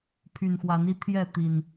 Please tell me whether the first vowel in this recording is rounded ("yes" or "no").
yes